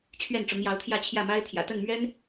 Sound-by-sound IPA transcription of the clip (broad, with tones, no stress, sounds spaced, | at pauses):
t͡ɕʰ ɥ ɛ˥˩ n ʈ͡ʂ ʊ˧˥ ŋ j ɑ˧˥ ʊ̯ t̪ʰ j ä˥˧ t͡ɕʰ j ä˥˩ m a˥ ɪ̯ t̪ʰ j ä̰˨˩ t̪ ə˥˩ n m ɥ ɛ˥ n